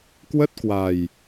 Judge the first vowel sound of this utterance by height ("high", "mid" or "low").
mid